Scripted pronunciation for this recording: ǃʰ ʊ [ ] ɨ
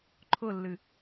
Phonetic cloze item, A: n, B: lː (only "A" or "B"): B